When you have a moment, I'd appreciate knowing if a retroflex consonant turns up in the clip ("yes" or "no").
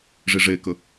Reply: yes